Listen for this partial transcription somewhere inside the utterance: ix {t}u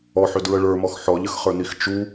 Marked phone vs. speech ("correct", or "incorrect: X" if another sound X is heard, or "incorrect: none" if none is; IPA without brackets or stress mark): incorrect: t͡ʃ